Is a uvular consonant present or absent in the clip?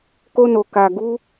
absent